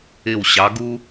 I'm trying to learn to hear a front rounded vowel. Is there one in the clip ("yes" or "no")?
no